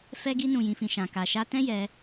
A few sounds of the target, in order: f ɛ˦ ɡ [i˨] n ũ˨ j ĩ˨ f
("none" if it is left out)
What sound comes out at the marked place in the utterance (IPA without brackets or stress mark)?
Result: i˧